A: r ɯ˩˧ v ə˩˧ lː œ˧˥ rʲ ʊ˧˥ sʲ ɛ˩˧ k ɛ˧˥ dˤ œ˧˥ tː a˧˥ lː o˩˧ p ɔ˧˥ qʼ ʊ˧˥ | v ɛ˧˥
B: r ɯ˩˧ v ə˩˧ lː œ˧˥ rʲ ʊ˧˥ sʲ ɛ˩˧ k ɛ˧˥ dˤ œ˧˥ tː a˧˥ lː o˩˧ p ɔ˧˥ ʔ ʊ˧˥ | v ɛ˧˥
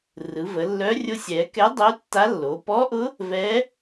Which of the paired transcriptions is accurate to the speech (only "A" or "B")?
B